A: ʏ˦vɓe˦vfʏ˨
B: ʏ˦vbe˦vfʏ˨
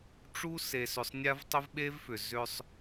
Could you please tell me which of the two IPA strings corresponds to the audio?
A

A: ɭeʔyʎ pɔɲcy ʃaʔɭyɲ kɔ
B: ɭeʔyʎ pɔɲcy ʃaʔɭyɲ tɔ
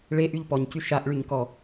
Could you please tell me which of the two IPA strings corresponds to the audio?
A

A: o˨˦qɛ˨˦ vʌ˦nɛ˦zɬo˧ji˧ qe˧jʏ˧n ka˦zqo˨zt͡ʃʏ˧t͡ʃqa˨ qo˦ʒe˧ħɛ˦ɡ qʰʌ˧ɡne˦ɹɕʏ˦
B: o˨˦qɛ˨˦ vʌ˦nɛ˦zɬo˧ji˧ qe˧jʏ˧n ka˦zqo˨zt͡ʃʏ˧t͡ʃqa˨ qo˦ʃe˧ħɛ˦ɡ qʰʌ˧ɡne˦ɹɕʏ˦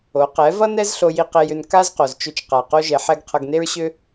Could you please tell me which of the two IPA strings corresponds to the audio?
A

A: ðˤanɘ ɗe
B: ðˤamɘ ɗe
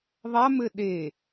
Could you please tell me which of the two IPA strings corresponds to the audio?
B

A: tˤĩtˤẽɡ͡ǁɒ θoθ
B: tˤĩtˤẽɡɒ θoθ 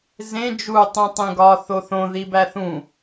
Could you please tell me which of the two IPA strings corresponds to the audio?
B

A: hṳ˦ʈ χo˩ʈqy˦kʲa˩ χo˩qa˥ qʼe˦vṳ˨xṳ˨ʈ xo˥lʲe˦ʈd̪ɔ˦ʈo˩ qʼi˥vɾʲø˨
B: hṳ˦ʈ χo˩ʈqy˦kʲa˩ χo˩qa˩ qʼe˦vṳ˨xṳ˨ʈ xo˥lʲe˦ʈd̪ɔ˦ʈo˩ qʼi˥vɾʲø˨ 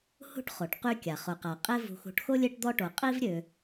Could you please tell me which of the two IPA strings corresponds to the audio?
B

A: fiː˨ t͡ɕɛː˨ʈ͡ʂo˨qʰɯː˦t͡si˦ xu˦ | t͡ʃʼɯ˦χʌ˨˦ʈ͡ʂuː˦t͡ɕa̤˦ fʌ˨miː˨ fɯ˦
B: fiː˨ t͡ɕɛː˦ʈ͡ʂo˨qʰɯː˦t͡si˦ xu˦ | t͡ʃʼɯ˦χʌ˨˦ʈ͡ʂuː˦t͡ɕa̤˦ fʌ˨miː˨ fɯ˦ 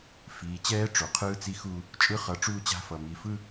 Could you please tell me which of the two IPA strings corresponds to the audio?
B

